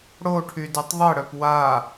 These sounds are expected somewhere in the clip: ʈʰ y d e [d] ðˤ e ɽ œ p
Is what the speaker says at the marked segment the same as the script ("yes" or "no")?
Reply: no